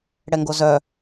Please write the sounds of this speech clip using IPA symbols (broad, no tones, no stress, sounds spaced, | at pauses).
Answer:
ɽ ɛ ŋ ɡ o z œ